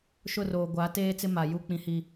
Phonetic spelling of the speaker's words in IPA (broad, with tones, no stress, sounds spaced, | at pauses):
ʃ ʊ˦˨ r oː˨ ɡʷ aː˨˦ t eː˦ t͡s ɪ˦ m a˨ j u˦˨ k͡p ĩ˨ h i˨